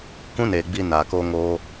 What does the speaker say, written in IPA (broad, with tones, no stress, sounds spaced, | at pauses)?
k ũ˦ n eː˨ ɡ͡b i˧ n aː˨ k oː˦ ŋ oː˦